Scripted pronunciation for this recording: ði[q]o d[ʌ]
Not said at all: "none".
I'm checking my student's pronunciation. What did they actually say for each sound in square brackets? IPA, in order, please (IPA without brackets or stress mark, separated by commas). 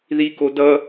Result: k, ʌ